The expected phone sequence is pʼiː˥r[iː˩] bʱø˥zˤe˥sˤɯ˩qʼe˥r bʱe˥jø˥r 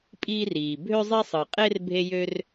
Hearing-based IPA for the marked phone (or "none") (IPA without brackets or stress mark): iː˩